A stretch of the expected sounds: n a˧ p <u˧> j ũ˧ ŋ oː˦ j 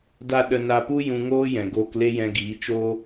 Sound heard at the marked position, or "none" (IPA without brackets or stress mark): u˦